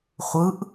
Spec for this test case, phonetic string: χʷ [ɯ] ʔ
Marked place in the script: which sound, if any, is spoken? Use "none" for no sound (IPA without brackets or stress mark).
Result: ɯ